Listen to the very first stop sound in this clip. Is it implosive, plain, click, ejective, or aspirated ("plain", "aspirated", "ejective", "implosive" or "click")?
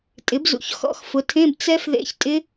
ejective